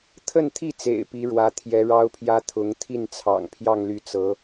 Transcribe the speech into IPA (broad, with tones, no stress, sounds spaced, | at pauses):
t̪ʰ ə˥˧ n t̪ʰ i˥˩ t͡s ḛ˨˩ ɪ̯ p i˧˥ ɻ w ä˧˥ t̪ʰ j ɛ˧˥ ɻ ɑ˥ ʊ̯ pʰ j ä˥ t̪ʰ ʊ˧˥ ŋ t̪ʰ i˥˩ n t͡sʰ ɑ̰˨˩ ŋ pʰ j ɑ˥˧ ŋ l y˥˩ t͡s ɤ˧˥